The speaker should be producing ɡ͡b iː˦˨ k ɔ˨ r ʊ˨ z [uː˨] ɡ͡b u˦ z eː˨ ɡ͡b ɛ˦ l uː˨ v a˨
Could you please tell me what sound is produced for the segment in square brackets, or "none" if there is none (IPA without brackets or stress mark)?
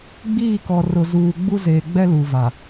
uː˨